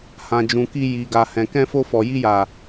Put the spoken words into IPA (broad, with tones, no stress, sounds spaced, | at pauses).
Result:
h ã˨ d͡ʒ ũ˨ k i˧ j i˨ ɡ a˨ h ɛ̃˨ k ɛ̃˧ f o˧ f ɔ˨ j i˧ j a˨